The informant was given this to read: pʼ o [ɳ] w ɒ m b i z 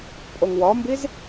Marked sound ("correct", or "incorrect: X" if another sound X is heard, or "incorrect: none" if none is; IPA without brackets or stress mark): incorrect: ŋ